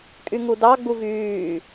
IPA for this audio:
kʼyŋudɑ ɡ͡buvyː

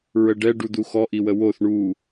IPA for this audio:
ɹəɖɛ ɖud̪uxɔ ʔiwəwoθ ɳu

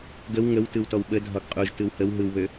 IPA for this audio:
ɡəw ŋəwtɯwtɔw ɓə dʱɒɡqʼuʒ tɯwhəw ɦɯwβø

